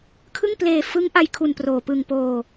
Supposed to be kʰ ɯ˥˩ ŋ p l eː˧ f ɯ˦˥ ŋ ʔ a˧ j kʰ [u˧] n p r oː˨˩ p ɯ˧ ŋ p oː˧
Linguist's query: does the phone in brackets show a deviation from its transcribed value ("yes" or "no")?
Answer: no